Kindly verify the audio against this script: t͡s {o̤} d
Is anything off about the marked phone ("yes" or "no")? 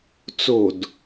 no